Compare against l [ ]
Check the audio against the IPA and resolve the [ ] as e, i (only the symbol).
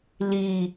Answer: i